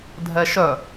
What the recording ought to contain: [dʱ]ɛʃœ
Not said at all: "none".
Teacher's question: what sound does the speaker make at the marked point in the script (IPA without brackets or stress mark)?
dʱ